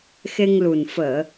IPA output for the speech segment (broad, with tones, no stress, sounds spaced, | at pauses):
x e˧ ŋ l u˨˩ n f əː˨˩˨